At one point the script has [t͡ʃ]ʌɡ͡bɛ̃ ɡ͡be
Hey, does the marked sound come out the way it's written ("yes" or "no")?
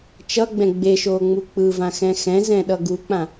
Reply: yes